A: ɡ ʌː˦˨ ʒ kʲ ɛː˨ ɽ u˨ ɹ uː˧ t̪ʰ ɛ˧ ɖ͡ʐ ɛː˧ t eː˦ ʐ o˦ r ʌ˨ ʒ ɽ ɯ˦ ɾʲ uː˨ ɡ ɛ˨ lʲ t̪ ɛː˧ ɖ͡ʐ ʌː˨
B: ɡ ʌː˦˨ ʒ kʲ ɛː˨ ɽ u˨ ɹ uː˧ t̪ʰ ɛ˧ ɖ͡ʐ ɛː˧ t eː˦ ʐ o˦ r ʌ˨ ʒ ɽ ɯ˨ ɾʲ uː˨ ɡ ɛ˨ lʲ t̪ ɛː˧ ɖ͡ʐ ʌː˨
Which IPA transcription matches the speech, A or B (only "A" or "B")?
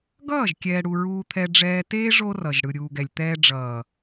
B